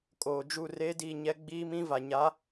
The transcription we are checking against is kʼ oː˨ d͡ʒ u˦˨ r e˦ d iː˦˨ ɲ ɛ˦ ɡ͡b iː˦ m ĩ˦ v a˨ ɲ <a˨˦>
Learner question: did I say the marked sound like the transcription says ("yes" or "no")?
yes